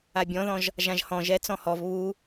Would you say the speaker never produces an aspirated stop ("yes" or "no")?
yes